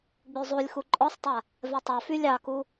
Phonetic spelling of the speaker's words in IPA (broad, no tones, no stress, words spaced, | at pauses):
ɡ͡byzˤulʲ xuǃʼɔsˤtˤa | vɛtˤa fylʲɑku